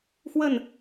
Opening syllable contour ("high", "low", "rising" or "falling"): falling